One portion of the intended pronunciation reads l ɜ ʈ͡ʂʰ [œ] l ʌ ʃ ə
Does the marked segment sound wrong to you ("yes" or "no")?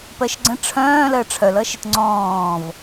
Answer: no